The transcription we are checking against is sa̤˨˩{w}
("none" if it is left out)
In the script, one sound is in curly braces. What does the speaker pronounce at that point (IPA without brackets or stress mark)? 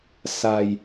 j